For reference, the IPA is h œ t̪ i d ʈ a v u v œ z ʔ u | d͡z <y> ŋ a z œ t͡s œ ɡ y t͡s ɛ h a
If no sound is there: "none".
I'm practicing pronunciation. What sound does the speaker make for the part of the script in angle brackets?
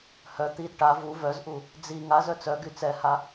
i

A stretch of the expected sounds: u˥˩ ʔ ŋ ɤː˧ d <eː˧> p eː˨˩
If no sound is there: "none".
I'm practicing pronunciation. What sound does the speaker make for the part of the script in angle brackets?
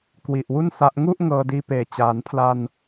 iː˧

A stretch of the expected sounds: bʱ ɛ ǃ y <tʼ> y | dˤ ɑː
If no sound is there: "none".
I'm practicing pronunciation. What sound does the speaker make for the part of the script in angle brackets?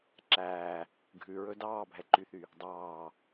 θ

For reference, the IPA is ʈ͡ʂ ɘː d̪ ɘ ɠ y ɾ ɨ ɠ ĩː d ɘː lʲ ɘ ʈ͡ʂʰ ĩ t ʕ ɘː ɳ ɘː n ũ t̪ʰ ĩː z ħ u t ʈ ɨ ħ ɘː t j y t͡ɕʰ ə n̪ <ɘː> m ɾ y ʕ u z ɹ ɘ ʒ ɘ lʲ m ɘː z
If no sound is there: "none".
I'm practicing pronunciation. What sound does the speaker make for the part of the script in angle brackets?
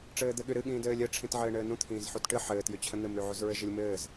ɘ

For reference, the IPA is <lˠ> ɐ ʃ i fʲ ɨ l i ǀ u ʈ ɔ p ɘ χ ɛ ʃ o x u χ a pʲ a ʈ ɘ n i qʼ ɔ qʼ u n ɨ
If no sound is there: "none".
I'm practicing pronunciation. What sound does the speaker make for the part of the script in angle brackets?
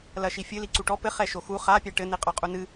l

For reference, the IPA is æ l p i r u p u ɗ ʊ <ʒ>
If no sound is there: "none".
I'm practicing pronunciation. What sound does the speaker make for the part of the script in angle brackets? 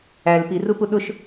ʃ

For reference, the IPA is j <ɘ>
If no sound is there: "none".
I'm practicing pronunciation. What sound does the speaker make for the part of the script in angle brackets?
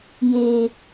e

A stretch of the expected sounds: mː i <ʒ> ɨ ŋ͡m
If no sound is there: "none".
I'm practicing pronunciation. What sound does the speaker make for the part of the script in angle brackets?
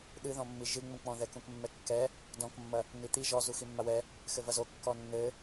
ʒ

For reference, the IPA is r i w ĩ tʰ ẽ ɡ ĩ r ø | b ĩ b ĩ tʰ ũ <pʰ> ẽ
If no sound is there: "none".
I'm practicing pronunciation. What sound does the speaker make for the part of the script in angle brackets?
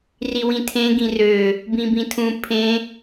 pʰ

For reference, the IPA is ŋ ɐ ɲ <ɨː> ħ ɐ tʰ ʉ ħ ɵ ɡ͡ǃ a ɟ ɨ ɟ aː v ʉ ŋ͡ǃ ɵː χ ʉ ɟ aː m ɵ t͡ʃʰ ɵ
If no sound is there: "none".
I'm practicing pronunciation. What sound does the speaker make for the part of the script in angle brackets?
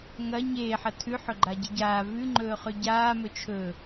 eː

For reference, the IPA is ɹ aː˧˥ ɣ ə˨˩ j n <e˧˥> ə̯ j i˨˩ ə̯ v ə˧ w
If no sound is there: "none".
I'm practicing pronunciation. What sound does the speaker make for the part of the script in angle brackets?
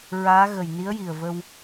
i˧˥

